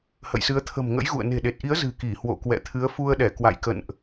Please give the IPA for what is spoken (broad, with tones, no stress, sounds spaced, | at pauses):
h ə̰˧˨ j s ɨ˨˦ ə̯ t̪ʰ ə̤˨˩ m ŋ ə̰˧˥ j ɣ ṵ˧˨ ə̯ n e̤˨˩ ɗ e˨˩ t̚ ʔ i˨˦ ə̯ z ɨ̤˨˩ k i˧˩ h w o̰˧˨ k w ɛ̰˧˨ t̪ʰ ɨ˨˦ ə̯ f u˧ ə̯ ɗ ɛ˧˩ k w a̰˧˨ j k ə̰˧˨ n ʔ